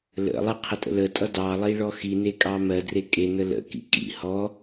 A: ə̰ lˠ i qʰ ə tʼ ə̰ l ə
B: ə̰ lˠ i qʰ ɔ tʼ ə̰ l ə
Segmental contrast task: A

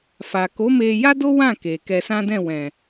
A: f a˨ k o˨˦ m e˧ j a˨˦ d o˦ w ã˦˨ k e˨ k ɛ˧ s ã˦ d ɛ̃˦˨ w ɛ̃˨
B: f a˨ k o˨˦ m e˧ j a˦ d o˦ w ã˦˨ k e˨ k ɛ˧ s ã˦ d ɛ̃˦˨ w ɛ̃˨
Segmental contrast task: B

